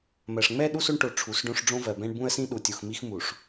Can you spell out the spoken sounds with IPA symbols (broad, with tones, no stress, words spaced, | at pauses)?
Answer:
mɜ˨ʂŋ͡mɛ˦ ɗu˦so˦ɳʈo˨ ʈ͡ʂʰu˨˦sɖõ˦ʂ ɖ͡ʐõ˦vɜ˨bɛ̃˦ɳ bũ˦ə̯sĩ˦ ɗu˨tʲu˨x mi˦xmu˨ʂ